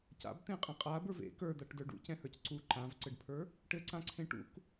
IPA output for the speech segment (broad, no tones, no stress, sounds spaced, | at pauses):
c a̰ b t̪ ẽ qʼ ẽ qʼ a b ə˞ v ḛ k ə˞ d̪ a ʈ d ə˞ ɖ ṵ c ɛ̃ h ə˞ c ǀ u ǃ ã v ǀ ɘ ɖ pʰ ə˞ | ʈ ɘ ǀ ã ǀʰ ẽ ʈ ṵ k